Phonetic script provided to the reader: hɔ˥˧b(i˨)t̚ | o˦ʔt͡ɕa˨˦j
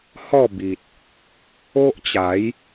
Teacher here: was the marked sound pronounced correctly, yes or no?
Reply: yes